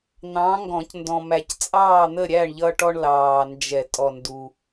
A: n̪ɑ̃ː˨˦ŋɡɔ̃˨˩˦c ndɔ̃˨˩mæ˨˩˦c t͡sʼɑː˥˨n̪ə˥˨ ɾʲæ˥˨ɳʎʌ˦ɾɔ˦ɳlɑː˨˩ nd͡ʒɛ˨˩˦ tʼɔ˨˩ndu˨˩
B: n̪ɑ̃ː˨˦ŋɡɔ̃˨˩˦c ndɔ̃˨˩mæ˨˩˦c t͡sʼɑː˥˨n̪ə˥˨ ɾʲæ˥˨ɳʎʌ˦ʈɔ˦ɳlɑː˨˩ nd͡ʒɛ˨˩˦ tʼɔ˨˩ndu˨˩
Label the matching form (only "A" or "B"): B